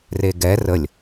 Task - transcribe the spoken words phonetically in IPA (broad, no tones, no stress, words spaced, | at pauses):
reɡɛ rəlʲ